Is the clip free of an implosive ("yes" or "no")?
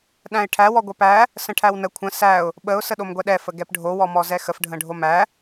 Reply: no